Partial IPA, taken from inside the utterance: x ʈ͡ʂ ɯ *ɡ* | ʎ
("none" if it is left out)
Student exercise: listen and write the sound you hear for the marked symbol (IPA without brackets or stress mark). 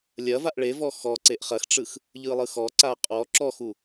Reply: x